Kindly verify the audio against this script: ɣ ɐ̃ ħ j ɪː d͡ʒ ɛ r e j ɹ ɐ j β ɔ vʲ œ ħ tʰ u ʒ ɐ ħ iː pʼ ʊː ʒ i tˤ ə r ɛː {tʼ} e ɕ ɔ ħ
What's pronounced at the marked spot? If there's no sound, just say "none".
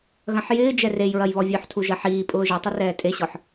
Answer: tʼ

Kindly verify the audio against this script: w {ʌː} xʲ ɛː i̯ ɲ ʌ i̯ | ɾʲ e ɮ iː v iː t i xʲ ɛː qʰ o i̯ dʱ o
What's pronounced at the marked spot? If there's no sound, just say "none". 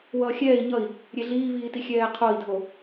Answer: ʌː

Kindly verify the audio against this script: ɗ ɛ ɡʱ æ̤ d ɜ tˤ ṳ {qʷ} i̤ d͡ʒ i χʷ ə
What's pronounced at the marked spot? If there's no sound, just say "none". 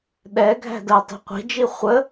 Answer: qʷ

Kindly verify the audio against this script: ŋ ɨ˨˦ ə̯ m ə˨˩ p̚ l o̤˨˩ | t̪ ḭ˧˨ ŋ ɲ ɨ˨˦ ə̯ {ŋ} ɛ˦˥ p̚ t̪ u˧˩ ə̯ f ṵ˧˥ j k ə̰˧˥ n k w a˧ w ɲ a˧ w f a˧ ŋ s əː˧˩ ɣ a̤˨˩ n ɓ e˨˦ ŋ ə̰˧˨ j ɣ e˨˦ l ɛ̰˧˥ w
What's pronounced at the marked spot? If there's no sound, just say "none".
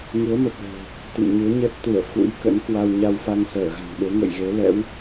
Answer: ɲ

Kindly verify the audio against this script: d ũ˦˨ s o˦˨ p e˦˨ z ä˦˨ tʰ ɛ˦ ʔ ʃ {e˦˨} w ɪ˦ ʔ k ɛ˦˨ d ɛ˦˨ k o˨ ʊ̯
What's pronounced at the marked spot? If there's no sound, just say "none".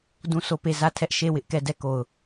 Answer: e˦˨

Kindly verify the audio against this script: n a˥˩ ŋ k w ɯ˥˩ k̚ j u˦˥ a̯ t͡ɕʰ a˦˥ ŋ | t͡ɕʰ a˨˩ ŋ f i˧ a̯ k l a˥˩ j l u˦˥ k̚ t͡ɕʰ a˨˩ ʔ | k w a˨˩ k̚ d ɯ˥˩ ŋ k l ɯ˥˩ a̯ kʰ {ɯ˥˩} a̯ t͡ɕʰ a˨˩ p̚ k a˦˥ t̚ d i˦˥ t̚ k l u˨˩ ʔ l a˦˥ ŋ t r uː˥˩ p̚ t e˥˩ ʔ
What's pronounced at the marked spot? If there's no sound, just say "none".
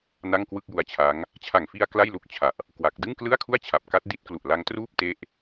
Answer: u˥˩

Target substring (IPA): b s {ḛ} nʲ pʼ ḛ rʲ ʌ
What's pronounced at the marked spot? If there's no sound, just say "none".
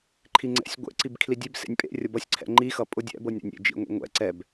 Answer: ḛ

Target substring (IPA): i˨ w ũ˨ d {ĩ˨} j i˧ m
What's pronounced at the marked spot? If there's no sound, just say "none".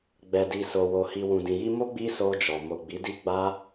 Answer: ĩ˨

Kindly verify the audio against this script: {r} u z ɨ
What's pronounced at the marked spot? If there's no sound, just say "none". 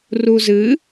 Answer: r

